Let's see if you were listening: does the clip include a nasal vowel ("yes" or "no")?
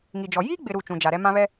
yes